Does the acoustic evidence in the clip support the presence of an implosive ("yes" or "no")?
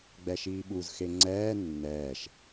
yes